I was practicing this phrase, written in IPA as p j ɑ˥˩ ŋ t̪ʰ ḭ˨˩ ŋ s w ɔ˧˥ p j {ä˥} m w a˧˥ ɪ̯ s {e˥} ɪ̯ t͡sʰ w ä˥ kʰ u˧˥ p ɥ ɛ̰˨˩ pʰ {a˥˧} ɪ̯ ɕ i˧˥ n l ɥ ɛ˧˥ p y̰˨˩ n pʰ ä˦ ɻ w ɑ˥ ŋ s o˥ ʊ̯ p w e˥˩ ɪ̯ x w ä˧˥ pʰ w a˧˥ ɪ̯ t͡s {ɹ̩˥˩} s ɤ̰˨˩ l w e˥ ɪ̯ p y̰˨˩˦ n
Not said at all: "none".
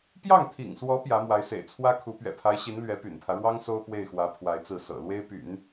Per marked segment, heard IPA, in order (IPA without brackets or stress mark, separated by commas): ä˧˥, ḛ˨˩, a˧˥, ɹ̩˥˩